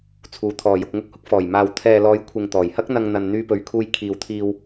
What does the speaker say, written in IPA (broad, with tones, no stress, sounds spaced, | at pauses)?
t͡sʰ uː˨˧ t̪ʰ ɔː˨ j ʊ˨ k̚ ŋ ʊ˧ k̚ h ʊ˧ k̚ f ɔː˨˩ j m aː˨ w t̪ʰ ɛː˨ l ɔː˨˧ j kʷʰ ɪ˨ ŋ t̪ ɔː˨˩ j h ɐ˥ k̚ n̪ ɐ˧ ŋ n̪ ɐ˧ n n̪ yː˧ p ɵ˨˧ ɥ kʰ uː˧ j kʰ iː˨ w t̪ʰ iː˧ w